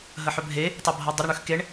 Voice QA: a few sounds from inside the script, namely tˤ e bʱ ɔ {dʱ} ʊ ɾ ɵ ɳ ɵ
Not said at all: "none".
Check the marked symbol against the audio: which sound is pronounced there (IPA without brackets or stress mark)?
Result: dˤ